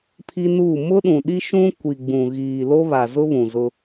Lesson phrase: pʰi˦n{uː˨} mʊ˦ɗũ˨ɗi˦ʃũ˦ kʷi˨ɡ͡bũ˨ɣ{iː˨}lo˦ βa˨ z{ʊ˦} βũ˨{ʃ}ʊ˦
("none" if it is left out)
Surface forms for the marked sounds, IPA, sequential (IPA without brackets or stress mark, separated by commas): uː˦˨, iː˨, ʊ˦, z